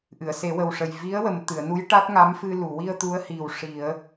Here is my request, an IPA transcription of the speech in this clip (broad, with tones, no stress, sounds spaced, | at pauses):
ʔ ɨ˨˩˨ ə̯ s e˨˩˦ w ə˨˩ w ʂ ə˨˩ j v i˧˥ ə̯ w ə˨˩ m t̪ ɨ˨˩˨ ə̯ n u˧˥ j ʈ a˦˥ t̚ ŋ a˧˥ m f ɨ˧ l u˨˩˨ w i˧ ə̯ t̪ u˧˥ ə̯ h i˨˩ w ʂ i˨˩˦ ə̯